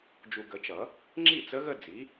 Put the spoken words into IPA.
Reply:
d͡ʒ u˨ ɡ ə˨˩˦ t͡ʃ ʌ˨˩˦ | ŋ͡ǁ i˥˩ t͡s ə˧˥ ɣ ə˥˧ d͡z i˩˥

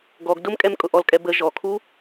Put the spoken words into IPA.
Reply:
ɡ ɔ ɡ d ʊ m kʼ ɛ m kʼ ʊ ʔ ɔ l kʼ ɛ b ə ʒ ɔ kʰ u

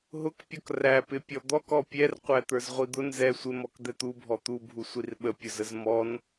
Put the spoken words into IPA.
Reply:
ɦ ʊ k pʲ ɔ k r æ p ɪ pʲ ɔ d̪ ɔ k ɔ pʲ ɛ r qʷ æ t̪ ə˞ z ʁʷ i d̪ ʊ n z ɛ sʷ ɪ m ɔ k d̪ ɛ t̪ u bʱ ɔ t̪ u bʱ u sʷ i r ɓ ə pʲ ʊ z ə z m ɔ n

